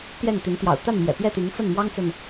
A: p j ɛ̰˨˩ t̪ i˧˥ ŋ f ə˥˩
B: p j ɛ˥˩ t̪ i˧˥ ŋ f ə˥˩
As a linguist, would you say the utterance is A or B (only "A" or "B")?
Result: B